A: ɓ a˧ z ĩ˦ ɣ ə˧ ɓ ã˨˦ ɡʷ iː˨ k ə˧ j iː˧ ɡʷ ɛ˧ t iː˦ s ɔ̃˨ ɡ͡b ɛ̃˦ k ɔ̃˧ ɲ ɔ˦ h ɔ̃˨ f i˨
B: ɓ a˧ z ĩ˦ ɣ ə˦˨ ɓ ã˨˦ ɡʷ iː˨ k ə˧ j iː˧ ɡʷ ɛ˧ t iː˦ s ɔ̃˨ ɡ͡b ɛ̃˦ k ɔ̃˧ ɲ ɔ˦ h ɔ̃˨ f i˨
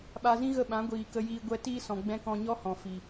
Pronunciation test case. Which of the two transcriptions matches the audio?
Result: B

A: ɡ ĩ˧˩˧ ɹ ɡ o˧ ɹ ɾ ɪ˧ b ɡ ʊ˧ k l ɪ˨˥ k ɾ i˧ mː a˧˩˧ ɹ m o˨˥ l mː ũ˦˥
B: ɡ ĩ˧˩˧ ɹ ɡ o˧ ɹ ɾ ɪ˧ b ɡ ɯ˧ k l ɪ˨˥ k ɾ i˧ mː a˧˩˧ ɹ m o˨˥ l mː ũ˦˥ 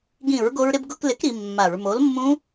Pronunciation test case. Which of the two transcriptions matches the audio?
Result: A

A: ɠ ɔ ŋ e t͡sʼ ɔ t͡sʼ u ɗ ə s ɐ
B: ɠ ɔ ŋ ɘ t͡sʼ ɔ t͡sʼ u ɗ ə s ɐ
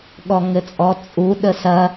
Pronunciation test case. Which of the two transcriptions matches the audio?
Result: B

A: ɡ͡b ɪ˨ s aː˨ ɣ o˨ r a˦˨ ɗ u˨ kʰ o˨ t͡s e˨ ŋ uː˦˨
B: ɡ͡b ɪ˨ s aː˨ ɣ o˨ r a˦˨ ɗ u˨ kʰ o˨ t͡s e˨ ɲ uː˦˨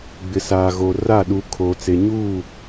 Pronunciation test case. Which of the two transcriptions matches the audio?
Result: B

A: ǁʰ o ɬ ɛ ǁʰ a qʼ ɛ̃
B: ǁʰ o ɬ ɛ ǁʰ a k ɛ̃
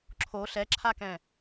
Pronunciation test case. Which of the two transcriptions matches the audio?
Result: B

